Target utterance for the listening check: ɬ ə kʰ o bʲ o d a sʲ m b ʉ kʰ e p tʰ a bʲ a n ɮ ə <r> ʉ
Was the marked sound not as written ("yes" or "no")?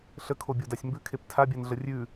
yes